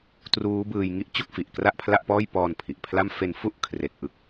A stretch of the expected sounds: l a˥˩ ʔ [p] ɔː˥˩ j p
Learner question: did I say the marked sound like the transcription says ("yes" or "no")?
yes